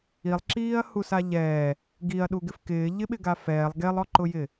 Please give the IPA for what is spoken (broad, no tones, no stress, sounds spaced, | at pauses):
i lˠ ǁ iː ɐ̯ h u s a ʎ ɛː | ɡ i ɐ̯ ɗ u ɡ ɪ f k ɪː ʎ ɪ ɓ ɪ ɡ a f ɛː lˠ ɡ e lˠ ɔ ǃ ʊ j ɪ